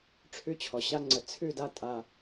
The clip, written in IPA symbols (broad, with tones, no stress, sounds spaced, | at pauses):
ʈ͡ʂʰ ʉ˧ t͡ɕʰ ɔ˨ ɕ a˧ ŋ͡ǀ ə˨ t͡sʰ ʉ˦˨ d a˦ tʼ a˧